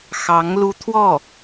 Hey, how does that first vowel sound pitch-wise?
rising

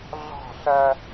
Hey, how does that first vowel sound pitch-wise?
falling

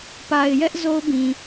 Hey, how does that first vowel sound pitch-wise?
low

